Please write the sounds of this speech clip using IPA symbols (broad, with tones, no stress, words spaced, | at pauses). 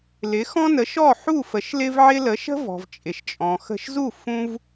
lɪ˩˥xɔ̃˥nə˩˥ ʃɔ˥˩ħu˥˩ fə˩˥ʃlɪ˥vʕɪ˥ lə˩˥ʃə̤˥vɔ̤˩v t͡ʃʼɪ˩ʃt͡ʃʼɔ̃˩ xə̤˧ʃzu˥˩ fũ˥v